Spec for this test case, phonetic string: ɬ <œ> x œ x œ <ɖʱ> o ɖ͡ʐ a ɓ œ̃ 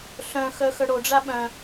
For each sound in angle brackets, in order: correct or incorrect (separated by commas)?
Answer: incorrect, incorrect